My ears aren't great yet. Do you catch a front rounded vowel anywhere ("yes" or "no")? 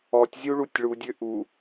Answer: yes